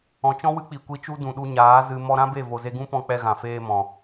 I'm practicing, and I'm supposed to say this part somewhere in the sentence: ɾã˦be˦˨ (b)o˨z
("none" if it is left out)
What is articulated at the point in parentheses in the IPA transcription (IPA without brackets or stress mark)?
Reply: v